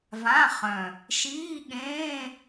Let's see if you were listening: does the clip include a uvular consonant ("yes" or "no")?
yes